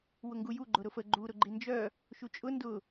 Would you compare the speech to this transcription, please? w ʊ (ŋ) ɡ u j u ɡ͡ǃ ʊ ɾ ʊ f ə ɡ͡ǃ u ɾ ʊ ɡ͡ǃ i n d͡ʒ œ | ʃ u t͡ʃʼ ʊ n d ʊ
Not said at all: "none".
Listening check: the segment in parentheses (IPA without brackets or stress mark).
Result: ŋ